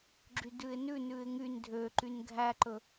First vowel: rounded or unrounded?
rounded